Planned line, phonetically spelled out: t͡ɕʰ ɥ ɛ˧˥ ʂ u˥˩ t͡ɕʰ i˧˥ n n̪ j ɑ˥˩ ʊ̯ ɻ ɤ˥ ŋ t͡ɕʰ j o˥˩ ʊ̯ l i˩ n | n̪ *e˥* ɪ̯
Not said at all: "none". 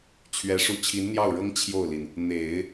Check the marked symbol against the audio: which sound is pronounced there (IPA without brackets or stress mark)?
e˨˩˦